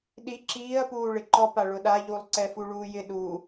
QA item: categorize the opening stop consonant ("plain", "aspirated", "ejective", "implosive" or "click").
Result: implosive